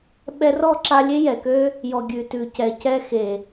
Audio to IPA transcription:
ɓɛ˧rɔ˦˨ǁa˧ lʲe˦jɛ˨kø˦ | jɔ˨ɡʲʉ˨tʉ˨ cɛ˨cɛ˧xe˨

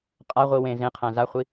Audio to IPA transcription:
qʼaʁʷi wẽ zẽqʰæ̃ zaχʷi

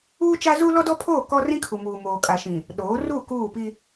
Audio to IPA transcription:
uː˦t͡ʃa˦zu˦ lɔ˦dɔ˦pʰoː˦˨ kɔ˦rĩ˦kʰu˨muː˨ moː˨kʼa˨ʃĩ˨ | ɗoː˨˦ ruː˦˨ kuː˦˨pi˦

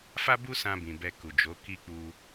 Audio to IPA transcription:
fa˦bu˦sã˧ bĩ˨bɛ˧ ku˨d͡ʒo˨˦ ki˦k͡pu˧

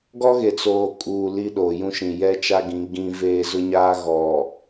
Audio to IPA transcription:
ɡɔ˦ɣe˨t͡soː˨ kʼuː˨ li˦ɗo˨jũ˦ ʃĩ˨jɛ˦t͡ʃa˦ɡĩ˨˦ ɡĩ˦veː˦ zʊ˦ɲaː˦ɣɔ˨

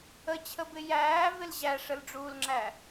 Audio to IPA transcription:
ət͡ɕʰəbɪ jæːvɪl ʑæʂəlɖ͡ʐuːlŋ͡ǁæ

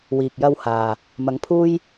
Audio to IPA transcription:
wiː˨k̚jɐ˧w haː˨ | mɐ˨˥ŋpʰuː˥j

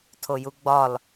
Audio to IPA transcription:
tʰojuɡ͡bɒl

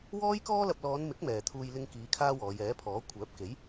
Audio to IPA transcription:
wɔː˥jkɔː˥lɐ˧p̚ lɔː˨˧nmɪ˨˥k̚ mɛː˨t̪ʰuː˧j lɪ˧ŋkiː˨˧ kʰaː˥wɔː˨˧j ɛː˨˥pʰɔː˨˥ kʷʰœː˨˥p̚ke˨˥j

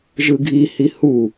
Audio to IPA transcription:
ʒɯɡʱihi hu

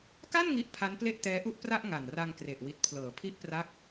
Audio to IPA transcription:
ka˥˩n ŋi˦˥ʔpʰa˦˥nple˥˩ʔ tɛː˦˥ʔu˥˩ʔpra˥˩ʔ ŋa˨˩nra˧ŋkre˨˩ʔ wi˨˩t̚pʰlɤː˩˦pʰi˦˥ʔpra˦˥k̚

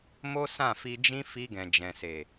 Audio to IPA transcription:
mo˦sã˦˨fi˧d͡ʒĩ˦ fi˧ɡɛ̃˨d͡ʒɛ̃˨se˨

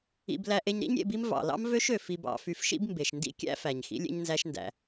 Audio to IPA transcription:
ḭ˧b læ˧ʔe˧ɲɾḭ˦ɲ ɾʲḛ˧bi˦m vɑ̰˨lɑ̰˦m vø˦ʃø˨ fi˧bɑ̰˨˦fy˧f ʃḭ˦bmbe˨ʃndḭ˦ kʲæ̰˦fæ˨ɲ xḭ˦lʲḛ˦ɲnzæ˦ʃndæ̰˧

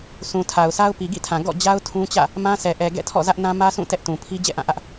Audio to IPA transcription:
sʰũ˨tʰa˨ʊ̯sa˦ʊ̯ pi˨ɡḭ˦˨tʰã˨ ɡɔ̰˦˨d͡ʑa˦ʊ̯ tʰũ˦t͡ɕä̰˦˨ | mã˦sɛ˨ʔɛ˨ ɡɛ̰˦˨tʰɔ̰˦˨zä˦ʔnã˦ mä˦sʰũ˦˨ tɛ˦ʔtũ˨ pʰi˦ d͡ʑɛ̰˦˨ʔã˦˨ ʔä˦ʔ

